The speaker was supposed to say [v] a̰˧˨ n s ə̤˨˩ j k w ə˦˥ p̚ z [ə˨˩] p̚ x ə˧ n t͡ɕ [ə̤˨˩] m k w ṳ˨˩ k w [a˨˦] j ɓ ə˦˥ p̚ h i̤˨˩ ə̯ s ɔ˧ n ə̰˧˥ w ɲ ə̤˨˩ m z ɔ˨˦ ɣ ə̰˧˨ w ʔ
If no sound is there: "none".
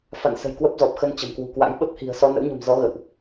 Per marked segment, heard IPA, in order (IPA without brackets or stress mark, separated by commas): f, ɔ˨˩, ə̤˨˩, a̰˧˥